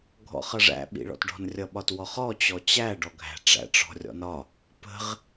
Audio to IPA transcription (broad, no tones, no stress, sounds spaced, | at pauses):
ɡʱ ɔ̰ χ ʌ ʐ æ̰ ɓ ḭ ɭ ɔ̰ t ɖ ɔ̤ n rʲ ʌ ɓ ɒ t w ɔ χ ɔ t͡ɕ ɔ t͡ɕ æ ɖ ɔ ɡʱ æ̤ ʈ͡ʂ æ̰ ʈ͡ʂ ɔ̤ rʲ ɔ̰ n ɒ | p ə̤ ʁ